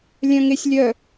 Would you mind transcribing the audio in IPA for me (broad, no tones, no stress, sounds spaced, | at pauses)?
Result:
lʲ œ̃ ŋ e sʲ lʲ œ